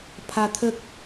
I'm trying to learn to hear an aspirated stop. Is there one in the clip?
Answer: yes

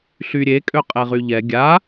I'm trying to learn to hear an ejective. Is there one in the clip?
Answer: yes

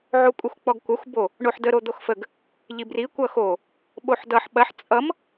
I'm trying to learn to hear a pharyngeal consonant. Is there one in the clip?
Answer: yes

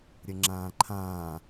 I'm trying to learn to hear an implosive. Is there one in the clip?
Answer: no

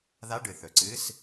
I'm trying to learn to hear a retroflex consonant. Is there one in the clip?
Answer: yes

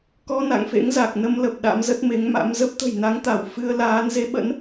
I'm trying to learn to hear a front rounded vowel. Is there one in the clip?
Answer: no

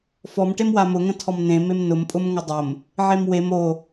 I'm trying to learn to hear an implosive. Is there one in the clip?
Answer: no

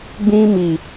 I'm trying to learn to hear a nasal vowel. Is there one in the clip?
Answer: yes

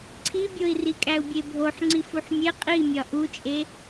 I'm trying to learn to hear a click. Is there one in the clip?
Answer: yes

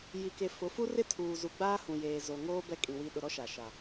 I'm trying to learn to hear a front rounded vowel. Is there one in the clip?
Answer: no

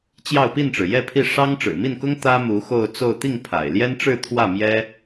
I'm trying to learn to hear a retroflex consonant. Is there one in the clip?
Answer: yes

